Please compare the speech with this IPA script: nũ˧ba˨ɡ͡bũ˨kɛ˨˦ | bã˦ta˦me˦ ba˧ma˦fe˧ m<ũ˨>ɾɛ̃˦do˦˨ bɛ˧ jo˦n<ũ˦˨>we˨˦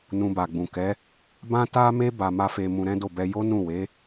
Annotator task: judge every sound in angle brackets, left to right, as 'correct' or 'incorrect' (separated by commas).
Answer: incorrect, correct